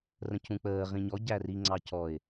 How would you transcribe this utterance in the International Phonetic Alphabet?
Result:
r ə̃ c ũ k͡p əː ʁ ĩ ɲ ɔ ɟ æ r i ŋ͡ǀ ɑ c ɔ ɪ̯

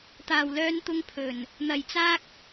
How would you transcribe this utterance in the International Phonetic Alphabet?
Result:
t̪ aː˨˩ w l œː˧ n t̪ ʊ˧ ŋ pʰ ɵ˨˩ n | n̪ ɐ˨˩ j t͡s aː˥ k̚

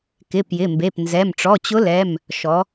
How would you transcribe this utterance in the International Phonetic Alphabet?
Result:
k ɪ˩˧˩ p j ɪ˩˧˩ m b e˩˧˩ p n z ɛ˩˧˩ m ʈ͡ʂ ɔ˩˧˩ t͡ɕ ʊ˧˥ l ɛ˩˧˩ m | ʃ ɔ˩˧

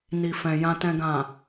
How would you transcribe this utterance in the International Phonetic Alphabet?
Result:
n i˨ f ɛ̃˨ j ã˨ t ɛ̃˨ ɡ ã˨

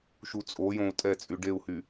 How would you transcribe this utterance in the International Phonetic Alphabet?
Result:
ʃ u t͡sʼ o j õ u̯ tʼ ɛ t͡sʼ y ɖ e u̯ h y

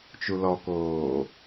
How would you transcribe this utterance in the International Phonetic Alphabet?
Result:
t͡ʃ u l ɔ k oː

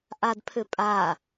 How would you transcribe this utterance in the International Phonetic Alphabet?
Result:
ʔ a d pʰ ʏ pʼ a

